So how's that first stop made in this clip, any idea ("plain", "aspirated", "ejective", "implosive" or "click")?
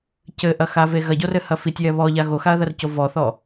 plain